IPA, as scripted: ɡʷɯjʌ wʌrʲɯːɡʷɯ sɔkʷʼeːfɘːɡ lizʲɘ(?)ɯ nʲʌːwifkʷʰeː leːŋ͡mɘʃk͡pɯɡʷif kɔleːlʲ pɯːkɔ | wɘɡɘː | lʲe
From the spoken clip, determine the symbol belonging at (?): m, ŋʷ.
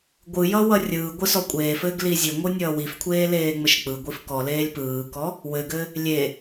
ŋʷ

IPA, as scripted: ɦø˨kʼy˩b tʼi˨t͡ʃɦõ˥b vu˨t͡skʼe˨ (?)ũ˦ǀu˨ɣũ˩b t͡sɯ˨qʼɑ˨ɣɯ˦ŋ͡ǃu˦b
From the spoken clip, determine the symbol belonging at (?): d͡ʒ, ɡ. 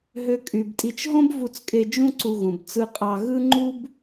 d͡ʒ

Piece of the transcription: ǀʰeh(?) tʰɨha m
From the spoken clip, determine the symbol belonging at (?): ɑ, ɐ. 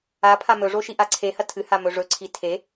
ɐ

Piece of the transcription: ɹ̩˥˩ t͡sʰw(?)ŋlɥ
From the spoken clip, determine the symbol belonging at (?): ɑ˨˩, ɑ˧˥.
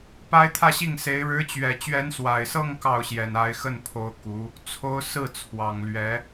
ɑ˨˩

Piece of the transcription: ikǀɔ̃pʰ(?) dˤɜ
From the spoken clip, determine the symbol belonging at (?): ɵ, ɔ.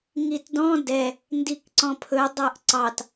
ɵ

